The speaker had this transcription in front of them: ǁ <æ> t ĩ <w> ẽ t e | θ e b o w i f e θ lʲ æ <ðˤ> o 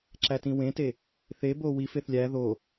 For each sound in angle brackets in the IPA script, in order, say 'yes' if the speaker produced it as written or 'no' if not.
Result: yes, yes, no

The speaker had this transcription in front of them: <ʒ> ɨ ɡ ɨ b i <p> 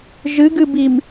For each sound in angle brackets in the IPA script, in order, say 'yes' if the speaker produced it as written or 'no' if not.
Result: yes, no

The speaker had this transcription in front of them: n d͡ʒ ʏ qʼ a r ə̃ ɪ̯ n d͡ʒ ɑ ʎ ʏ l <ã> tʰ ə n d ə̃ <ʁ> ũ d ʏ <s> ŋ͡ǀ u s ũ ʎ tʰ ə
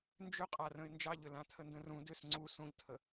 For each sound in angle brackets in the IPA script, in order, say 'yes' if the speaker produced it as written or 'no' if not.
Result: yes, no, yes

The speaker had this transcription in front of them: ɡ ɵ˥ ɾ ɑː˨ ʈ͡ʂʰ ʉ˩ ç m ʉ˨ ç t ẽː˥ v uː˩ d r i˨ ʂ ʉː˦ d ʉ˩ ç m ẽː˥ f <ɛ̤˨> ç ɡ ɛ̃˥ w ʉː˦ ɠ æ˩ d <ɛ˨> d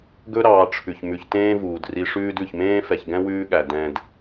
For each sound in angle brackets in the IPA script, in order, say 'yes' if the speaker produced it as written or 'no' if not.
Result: no, no

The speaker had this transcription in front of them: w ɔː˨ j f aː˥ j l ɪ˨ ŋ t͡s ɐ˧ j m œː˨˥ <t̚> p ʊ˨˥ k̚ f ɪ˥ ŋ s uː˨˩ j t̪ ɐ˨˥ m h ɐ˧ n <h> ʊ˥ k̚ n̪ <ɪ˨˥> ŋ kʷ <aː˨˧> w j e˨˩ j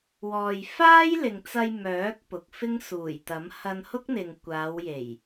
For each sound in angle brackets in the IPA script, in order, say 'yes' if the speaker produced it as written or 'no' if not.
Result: no, yes, no, yes

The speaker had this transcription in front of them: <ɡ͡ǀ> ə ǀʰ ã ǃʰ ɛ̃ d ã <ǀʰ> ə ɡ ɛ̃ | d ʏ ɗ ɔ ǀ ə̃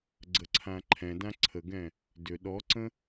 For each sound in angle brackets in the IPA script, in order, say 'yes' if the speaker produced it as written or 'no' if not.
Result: yes, yes

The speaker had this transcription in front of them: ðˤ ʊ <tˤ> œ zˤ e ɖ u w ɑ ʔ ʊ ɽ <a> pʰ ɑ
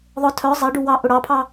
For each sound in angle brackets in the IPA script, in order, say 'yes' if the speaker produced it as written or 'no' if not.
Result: no, no

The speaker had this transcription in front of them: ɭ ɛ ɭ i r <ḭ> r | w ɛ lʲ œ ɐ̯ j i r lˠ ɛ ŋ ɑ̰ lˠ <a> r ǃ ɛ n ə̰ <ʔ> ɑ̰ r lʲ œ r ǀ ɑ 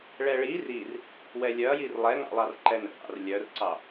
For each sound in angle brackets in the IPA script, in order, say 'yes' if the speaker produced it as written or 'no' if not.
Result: no, no, yes

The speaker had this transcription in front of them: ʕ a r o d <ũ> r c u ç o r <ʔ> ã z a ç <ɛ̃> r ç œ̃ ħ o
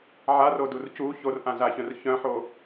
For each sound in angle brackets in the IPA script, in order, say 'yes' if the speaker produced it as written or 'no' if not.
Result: no, yes, no

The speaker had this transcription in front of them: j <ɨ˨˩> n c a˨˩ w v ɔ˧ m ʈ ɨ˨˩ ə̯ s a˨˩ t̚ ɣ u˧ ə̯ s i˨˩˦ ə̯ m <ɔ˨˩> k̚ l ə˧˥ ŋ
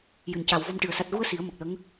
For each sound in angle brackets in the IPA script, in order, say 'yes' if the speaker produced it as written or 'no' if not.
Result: yes, no

